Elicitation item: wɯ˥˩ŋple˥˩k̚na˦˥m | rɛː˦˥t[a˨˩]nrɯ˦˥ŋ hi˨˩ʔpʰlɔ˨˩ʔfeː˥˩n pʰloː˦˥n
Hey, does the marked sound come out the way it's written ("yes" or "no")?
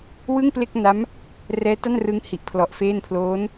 no